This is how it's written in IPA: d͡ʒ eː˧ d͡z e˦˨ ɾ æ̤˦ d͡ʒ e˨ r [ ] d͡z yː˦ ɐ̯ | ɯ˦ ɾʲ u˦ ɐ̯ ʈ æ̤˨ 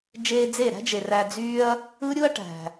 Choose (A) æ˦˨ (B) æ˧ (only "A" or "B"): B